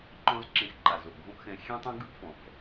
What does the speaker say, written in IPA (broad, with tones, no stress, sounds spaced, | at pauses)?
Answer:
ǃ ɔ̃˥ z ǁ ẽ˧ x ǃ a˩ z o˩ ʔ ɡʱ õ˥ ʔ x ɛ̃˧ xʲ ẽ˥ tˤ ɛ̃˥ ɡ ɯ˥ ʔ f ɔ̃˩ f